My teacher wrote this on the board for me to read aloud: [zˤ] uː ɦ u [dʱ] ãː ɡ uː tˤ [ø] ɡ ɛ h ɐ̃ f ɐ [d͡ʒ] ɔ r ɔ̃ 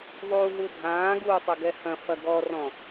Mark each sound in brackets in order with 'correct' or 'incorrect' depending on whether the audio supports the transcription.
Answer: incorrect: ðˤ, correct, incorrect: ɘ, incorrect: ɡ

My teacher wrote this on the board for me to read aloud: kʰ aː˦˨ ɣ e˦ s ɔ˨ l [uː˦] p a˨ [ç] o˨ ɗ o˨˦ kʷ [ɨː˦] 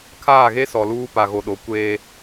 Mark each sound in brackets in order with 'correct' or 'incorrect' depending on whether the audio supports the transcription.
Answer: correct, incorrect: ɣ, incorrect: eː˦

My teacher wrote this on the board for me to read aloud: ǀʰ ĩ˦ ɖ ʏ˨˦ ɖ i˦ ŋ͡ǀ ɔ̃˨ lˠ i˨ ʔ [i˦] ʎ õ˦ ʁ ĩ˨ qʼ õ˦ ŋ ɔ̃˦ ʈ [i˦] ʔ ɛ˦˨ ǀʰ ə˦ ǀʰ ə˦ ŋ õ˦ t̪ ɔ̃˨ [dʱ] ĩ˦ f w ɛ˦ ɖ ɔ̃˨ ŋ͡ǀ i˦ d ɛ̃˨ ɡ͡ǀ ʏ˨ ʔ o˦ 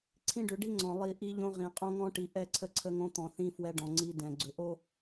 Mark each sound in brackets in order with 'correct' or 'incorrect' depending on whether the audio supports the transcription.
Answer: correct, incorrect: i˨, incorrect: θ

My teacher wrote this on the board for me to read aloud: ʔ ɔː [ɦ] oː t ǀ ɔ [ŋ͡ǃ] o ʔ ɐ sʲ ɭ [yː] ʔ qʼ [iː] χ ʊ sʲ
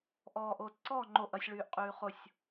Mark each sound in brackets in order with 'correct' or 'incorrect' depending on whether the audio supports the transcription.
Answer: incorrect: ʔ, correct, correct, incorrect: yː

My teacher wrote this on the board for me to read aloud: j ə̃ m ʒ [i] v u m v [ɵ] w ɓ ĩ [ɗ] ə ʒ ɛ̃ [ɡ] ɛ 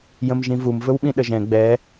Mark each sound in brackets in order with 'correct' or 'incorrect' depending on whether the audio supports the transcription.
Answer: incorrect: ĩ, correct, correct, incorrect: ɡ͡b

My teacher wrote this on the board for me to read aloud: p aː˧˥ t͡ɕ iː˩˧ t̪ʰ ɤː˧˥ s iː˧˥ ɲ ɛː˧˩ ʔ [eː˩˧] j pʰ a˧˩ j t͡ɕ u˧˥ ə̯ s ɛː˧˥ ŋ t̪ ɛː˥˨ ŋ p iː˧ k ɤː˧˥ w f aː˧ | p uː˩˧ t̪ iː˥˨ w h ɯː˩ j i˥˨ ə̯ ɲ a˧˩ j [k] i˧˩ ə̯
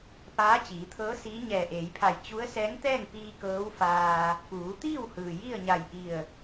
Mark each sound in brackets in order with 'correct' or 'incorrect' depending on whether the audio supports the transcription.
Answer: correct, incorrect: ʔ

